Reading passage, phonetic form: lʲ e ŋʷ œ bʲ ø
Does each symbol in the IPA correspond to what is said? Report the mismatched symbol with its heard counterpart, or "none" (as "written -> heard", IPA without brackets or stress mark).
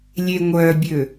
none